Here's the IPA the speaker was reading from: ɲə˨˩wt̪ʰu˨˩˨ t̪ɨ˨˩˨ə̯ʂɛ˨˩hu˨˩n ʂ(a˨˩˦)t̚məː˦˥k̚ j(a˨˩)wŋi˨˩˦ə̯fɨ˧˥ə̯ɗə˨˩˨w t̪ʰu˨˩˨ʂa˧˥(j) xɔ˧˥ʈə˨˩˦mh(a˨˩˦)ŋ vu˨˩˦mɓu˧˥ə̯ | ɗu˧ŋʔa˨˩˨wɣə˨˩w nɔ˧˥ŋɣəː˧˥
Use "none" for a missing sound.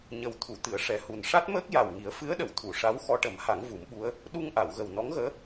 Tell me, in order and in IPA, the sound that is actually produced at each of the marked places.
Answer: a˦˥, a˨˩, w, a˨˩˦

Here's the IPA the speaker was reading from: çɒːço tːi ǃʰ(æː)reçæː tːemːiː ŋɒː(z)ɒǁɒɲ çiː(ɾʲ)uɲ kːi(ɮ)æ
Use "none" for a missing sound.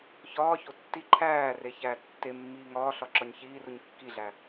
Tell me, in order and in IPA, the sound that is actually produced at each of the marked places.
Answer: æː, ɬ, r, ɮ

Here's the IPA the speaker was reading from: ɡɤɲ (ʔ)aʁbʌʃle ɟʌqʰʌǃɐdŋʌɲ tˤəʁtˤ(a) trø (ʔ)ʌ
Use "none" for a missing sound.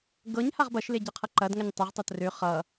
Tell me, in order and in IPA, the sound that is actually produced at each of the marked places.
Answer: h, ʌ, χ

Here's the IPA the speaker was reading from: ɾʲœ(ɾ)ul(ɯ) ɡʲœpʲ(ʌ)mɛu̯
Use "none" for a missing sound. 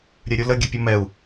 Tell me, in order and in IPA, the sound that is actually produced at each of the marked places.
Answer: ɾʲ, ə, ʌ

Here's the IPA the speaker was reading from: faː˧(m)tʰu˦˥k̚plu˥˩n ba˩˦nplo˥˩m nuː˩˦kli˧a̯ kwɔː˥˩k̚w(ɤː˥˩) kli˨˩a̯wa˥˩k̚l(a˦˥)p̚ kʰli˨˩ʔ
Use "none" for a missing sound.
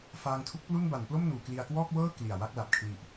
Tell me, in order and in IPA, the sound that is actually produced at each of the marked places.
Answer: ŋ, ɤː˥˩, a˨˩

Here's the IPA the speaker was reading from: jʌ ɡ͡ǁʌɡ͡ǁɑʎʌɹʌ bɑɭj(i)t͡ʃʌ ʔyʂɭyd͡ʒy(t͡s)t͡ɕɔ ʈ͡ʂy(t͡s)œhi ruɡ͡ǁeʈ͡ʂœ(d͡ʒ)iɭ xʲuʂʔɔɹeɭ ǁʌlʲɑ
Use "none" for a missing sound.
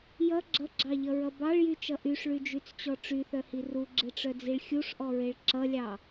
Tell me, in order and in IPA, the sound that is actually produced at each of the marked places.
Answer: y, t͡s, θ, d͡z

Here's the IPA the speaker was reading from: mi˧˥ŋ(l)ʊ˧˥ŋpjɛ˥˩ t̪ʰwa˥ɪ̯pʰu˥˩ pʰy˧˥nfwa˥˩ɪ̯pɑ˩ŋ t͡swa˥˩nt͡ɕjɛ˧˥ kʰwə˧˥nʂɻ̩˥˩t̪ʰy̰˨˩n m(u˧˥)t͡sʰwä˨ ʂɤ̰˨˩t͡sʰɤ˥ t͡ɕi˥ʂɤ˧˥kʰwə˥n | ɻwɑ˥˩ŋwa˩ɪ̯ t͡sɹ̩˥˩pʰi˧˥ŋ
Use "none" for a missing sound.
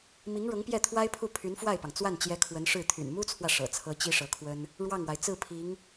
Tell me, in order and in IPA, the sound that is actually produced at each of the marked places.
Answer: ɻ, u˥

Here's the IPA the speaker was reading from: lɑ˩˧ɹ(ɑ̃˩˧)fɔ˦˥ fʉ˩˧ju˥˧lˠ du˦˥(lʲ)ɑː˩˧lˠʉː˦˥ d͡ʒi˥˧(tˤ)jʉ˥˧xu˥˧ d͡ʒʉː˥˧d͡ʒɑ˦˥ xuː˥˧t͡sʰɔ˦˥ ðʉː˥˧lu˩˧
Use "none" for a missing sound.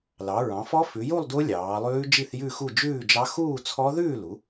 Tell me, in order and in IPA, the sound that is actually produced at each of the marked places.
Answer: ɑ̃˩˧, lʲ, θ

